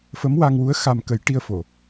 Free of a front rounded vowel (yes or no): yes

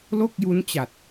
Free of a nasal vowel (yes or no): yes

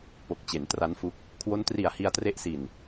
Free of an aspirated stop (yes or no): no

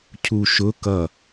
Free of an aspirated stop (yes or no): no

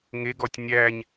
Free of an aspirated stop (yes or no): yes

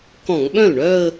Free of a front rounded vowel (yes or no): no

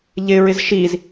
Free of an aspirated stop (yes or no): yes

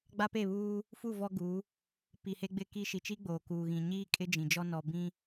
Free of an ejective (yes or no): no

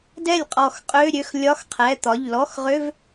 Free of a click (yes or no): yes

